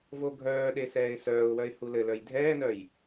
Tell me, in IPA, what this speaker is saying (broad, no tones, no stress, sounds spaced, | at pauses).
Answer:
v o ɡʱ œː ɗ e s ɛː ɪ̯ s œː ʊ̯ w œ ɪ̯ h u l ɘ l œ j dʱ ɛː n œ j